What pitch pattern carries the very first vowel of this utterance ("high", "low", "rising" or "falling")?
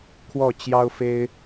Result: falling